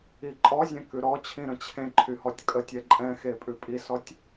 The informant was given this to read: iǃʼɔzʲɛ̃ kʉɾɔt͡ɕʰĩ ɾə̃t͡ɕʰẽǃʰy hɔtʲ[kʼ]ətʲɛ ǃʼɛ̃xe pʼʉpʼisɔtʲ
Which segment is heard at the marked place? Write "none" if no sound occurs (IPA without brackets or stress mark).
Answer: kʼ